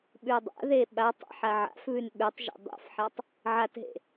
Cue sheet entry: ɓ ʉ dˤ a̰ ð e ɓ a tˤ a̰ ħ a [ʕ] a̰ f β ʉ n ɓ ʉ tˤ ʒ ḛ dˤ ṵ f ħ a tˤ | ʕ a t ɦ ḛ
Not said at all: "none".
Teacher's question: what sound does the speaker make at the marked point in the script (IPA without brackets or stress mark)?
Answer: ʕ